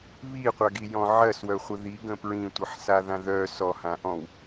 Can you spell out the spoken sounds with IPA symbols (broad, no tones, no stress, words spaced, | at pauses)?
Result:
βiqʷaɡijɔ̃ ʕɜswœχʷə ðiɡə̃ pɹĩtʷɯħsaðã ðœ sɔhãʔɔ̃w